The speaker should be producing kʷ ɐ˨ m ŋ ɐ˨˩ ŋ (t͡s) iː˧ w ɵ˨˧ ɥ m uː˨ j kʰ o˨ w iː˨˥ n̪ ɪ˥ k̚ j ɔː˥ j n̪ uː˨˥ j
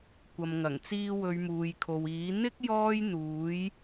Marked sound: correct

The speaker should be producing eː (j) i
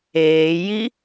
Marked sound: correct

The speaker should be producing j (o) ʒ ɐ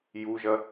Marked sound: incorrect: u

